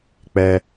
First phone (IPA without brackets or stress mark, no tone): k͡p